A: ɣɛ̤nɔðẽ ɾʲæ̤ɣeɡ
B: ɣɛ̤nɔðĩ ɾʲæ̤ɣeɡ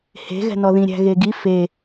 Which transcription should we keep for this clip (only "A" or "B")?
B